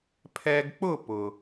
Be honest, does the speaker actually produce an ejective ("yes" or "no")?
no